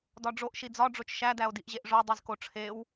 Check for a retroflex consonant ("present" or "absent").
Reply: present